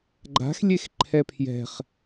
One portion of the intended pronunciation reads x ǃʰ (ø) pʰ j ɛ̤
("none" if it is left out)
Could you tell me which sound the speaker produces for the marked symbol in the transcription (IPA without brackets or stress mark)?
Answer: ɛ